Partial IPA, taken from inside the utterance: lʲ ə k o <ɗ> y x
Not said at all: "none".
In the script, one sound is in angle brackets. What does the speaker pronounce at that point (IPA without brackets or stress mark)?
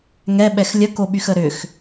ɓ